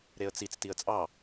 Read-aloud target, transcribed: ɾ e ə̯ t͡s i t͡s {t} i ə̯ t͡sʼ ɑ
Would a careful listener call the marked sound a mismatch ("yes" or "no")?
no